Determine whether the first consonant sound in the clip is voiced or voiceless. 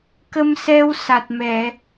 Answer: voiceless